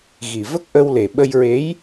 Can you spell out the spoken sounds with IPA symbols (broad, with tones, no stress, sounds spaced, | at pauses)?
ɣ i˨˩ v ə˦˥ k̚ ʔ ə˧ w l e˨˩ ɓ ə˧ j ɹ e˧˥ j